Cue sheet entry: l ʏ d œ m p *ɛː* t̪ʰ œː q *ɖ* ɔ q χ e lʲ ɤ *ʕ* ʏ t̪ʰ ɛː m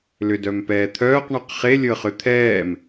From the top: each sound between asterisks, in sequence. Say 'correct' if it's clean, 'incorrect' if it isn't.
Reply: correct, incorrect, incorrect

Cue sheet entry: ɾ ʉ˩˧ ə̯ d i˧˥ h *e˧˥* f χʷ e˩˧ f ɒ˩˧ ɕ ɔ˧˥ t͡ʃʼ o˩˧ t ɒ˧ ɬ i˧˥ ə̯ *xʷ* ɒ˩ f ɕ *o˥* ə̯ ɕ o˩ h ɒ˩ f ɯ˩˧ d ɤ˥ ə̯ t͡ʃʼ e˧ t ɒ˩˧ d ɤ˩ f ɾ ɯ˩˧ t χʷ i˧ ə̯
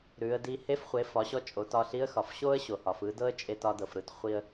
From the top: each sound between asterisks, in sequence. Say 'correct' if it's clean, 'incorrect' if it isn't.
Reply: correct, incorrect, correct

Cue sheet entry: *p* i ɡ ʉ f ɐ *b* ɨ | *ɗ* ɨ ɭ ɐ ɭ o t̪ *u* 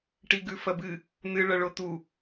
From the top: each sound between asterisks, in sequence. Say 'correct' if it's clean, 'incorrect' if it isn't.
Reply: incorrect, correct, incorrect, correct

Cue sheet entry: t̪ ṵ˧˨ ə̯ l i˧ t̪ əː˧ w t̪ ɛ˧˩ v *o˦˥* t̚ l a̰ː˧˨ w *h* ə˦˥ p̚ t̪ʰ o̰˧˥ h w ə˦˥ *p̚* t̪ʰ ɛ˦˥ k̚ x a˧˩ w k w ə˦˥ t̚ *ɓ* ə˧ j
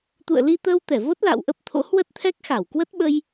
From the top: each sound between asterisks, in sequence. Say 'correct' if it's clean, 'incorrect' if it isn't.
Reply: correct, incorrect, incorrect, correct

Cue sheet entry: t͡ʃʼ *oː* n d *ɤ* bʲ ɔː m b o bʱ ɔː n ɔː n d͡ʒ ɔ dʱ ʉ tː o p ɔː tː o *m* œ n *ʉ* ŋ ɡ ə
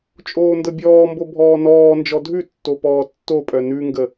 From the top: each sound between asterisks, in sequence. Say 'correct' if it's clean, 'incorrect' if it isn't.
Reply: correct, correct, incorrect, correct

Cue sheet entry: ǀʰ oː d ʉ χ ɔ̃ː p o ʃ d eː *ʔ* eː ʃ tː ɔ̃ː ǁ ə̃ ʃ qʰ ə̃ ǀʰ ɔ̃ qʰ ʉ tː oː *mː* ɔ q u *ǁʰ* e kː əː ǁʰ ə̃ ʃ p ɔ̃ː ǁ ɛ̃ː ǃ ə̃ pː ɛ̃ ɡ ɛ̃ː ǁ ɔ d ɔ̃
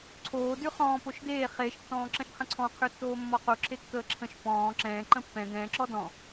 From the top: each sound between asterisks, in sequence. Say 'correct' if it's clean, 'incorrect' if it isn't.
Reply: incorrect, correct, correct

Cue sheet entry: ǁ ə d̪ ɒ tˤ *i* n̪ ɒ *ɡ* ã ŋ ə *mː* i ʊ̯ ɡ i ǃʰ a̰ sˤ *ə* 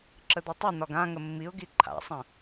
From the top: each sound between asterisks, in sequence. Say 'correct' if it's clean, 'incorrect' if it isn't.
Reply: correct, correct, correct, incorrect

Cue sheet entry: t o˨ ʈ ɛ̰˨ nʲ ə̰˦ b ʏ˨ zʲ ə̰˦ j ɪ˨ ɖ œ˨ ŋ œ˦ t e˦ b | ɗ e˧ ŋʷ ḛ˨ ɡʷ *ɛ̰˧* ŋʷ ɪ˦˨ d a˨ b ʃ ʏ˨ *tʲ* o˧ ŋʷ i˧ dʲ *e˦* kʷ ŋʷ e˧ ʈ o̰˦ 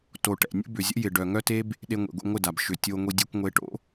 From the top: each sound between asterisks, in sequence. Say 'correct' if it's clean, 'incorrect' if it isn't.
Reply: correct, correct, correct

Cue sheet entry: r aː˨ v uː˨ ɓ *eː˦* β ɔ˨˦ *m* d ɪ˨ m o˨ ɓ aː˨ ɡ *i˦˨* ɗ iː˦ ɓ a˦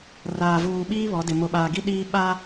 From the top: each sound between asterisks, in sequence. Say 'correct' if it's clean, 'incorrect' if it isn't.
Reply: incorrect, incorrect, incorrect

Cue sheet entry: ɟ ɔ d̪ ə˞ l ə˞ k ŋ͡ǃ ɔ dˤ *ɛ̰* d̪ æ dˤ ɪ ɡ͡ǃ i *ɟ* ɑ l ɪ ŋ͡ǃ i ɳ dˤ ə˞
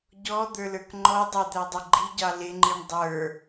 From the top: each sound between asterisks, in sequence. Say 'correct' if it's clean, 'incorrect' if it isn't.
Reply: incorrect, correct

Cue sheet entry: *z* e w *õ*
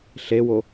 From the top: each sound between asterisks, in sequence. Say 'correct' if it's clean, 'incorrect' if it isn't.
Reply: incorrect, incorrect

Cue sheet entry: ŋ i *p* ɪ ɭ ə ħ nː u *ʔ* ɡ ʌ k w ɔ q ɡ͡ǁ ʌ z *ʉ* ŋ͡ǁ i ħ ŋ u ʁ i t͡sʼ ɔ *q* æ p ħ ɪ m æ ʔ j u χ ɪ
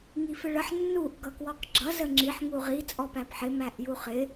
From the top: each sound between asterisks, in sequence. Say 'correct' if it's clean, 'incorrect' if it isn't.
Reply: incorrect, correct, incorrect, incorrect

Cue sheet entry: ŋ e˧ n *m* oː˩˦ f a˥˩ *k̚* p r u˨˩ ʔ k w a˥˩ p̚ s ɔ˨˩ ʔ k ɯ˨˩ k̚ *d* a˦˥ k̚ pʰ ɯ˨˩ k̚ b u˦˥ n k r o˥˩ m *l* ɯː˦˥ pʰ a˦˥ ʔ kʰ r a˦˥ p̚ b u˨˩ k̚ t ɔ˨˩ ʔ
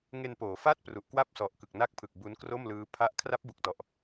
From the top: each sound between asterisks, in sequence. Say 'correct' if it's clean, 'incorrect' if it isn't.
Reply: incorrect, incorrect, incorrect, correct

